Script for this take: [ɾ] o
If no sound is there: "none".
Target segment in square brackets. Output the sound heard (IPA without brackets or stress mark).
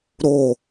ɾ